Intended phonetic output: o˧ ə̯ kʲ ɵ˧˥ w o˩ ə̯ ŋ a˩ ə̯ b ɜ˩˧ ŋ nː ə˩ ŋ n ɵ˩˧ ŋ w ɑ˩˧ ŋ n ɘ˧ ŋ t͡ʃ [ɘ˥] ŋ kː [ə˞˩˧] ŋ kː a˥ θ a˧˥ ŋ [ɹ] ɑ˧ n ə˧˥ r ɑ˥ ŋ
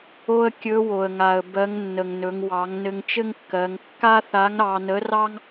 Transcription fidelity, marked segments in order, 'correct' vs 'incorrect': correct, incorrect, incorrect

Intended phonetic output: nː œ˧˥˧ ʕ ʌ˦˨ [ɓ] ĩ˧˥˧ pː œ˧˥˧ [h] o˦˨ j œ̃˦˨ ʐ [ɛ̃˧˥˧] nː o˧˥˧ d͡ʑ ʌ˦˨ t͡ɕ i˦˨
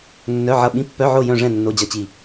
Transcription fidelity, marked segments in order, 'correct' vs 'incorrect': correct, incorrect, incorrect

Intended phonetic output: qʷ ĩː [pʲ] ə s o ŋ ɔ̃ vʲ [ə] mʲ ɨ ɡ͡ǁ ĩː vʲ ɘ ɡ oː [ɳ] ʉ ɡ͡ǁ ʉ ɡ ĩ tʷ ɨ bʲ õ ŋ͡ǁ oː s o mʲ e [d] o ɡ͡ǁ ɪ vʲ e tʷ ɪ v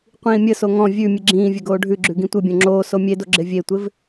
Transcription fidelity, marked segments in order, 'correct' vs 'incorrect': incorrect, incorrect, incorrect, correct

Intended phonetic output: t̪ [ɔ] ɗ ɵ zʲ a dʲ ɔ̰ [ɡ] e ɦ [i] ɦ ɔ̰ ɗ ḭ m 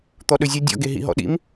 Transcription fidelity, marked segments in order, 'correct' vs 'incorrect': correct, correct, incorrect

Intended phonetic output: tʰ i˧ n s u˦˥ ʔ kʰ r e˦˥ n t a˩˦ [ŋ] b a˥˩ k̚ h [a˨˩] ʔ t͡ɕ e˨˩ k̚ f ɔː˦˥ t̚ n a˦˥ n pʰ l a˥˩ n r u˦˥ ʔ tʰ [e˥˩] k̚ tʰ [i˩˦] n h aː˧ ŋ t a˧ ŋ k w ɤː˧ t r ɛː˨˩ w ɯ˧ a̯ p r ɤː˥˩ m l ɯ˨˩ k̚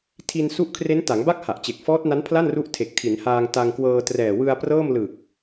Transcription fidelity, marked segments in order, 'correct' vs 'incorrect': correct, correct, incorrect, correct

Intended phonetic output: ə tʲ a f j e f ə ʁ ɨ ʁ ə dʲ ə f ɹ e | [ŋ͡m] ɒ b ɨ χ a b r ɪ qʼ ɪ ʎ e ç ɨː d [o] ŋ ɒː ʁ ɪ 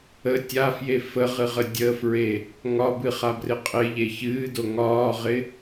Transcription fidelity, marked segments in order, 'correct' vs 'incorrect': incorrect, correct

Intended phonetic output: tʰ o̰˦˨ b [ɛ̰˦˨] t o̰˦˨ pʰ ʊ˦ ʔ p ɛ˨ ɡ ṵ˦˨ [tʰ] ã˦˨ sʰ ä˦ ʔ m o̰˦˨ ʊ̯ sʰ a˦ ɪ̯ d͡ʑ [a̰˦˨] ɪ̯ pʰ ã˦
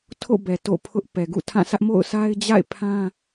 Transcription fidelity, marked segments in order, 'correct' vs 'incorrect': incorrect, correct, correct

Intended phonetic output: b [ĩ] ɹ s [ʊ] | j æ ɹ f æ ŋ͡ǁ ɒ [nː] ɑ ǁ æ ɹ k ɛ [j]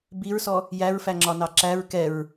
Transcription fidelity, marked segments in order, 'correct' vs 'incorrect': incorrect, incorrect, incorrect, incorrect

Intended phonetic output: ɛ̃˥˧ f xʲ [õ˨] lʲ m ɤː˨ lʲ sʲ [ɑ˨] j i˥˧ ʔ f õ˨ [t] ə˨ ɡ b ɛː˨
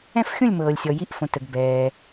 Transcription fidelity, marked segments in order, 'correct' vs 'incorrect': incorrect, incorrect, correct

